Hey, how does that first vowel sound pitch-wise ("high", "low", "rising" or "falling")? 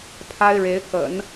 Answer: high